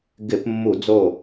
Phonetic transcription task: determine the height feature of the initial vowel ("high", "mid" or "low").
high